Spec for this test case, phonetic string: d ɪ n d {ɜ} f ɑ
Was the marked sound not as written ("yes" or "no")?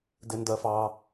no